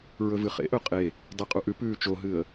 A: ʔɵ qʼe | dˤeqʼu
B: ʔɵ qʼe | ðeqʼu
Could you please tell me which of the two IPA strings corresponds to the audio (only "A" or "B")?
A